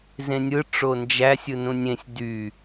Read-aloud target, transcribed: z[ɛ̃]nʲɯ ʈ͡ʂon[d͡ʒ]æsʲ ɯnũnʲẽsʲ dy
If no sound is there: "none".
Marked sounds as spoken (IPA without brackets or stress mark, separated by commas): ẽ, d͡ʒ